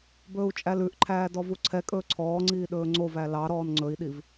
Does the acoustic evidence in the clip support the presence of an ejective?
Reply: yes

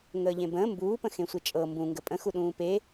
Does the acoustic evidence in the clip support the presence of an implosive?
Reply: yes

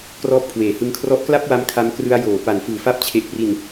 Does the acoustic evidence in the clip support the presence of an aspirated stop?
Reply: yes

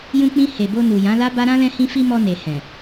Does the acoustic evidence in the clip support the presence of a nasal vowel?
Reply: yes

